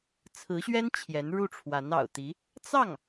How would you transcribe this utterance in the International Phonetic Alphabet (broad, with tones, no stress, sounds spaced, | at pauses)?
t͡sʰ ɹ̩˧˥ ɕ ɥ ɛ˥ n t͡ɕʰ j ɛ˧˥ n ɻ u˥˩ ʈ͡ʂʰ w a˧˥ n ɑ̰˨˩ ʊ̯ t̪ i˧˥ | t͡s ɑ˥˩ ŋ